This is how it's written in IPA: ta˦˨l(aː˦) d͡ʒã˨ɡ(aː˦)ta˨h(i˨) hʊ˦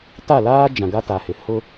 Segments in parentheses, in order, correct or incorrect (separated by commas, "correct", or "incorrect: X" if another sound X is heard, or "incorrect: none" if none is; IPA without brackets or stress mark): correct, incorrect: a˦, incorrect: ɪ˨